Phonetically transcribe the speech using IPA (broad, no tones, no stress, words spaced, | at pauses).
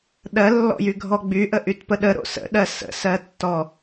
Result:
ɗɜlːɔ̰jy ɡʱɔɡ͡byʔə ʔytpəɗə ɾo̰sə̰ɗɜ sə̰sɜtːɔ